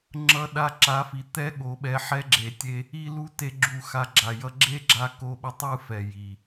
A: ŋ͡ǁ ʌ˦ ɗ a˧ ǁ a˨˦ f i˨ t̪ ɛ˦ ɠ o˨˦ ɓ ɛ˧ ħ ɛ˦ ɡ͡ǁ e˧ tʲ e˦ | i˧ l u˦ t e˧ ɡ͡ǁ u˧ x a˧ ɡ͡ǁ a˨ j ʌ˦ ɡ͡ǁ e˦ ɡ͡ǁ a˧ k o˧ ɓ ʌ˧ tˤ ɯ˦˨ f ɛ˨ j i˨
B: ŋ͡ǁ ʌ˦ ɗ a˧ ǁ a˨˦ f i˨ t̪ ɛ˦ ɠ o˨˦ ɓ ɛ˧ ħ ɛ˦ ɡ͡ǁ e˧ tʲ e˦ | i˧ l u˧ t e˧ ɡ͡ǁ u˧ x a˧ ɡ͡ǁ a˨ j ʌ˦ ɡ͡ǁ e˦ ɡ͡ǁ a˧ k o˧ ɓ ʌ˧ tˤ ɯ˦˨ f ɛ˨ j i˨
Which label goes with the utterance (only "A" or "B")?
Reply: B